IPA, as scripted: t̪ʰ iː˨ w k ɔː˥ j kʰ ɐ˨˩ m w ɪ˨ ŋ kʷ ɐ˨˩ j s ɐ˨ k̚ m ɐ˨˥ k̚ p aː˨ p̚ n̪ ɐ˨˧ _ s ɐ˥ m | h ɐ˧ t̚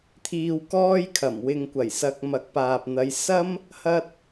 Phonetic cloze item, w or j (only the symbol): j